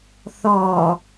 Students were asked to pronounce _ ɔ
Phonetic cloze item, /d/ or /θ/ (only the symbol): θ